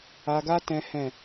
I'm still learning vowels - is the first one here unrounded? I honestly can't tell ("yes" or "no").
yes